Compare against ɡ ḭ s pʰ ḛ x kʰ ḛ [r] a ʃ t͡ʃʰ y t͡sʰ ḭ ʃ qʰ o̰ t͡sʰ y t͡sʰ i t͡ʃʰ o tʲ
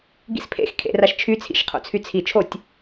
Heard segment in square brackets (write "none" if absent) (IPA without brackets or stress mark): r